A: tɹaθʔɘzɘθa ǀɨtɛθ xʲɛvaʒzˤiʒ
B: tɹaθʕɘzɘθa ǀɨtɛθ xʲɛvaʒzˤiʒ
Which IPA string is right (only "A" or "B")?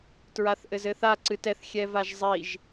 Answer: A